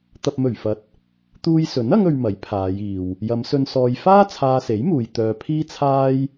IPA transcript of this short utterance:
t̪ɐ˨p̚mɵ˨˩ɥfɐ˨˥t̚ | t̪uː˧jsɵ˨˥n ɐ˥ŋɵ˧ɥmɐ˨˥j pʰaː˨˧jiː˨w | jɐ˨˧msɵ˧n sɔː˧j faː˥ t͡sʰaː˧se˨˥jmuː˨j t̪œː˧pʰiː˥t͡sʰaː˥j

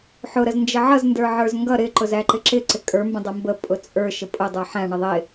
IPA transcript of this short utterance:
ħʊ ɾəznd͡ʒəʕʌz ndə˞ʕə˞zŋɡʌ ɾɪ ǃʊzæǃɪǁɪ ǀɪkʼə˞ mbə̃dˤʌmbə pʼʊt͡sʼə˞ ʃəpʼʊ dˤə˞ħæ̃ ɳɪðˤɪ

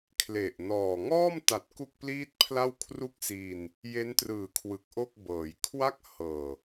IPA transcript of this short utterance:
kʰle˨˩ʔnɔː˨˩ ŋɔː˥˩mta˨˩t̚ ku˥˩k̚pliː˥˩t̚pʰla˥˩w kʰru˥˩k̚si˧n | je˦˥ntrɯː˨˩kʰwɯ˨˩k̚ ʔo˥˩k̚bɤː˩˦j kʰwa˦˥k̚ hɤː˨˩

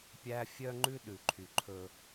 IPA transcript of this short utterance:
pʲæ˦ fʲœ˦ŋ͡ǃʉ˦ ɗʉ˨ǃʰy˨ǃʰɵ˦

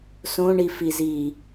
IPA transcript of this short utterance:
sõɳifizi

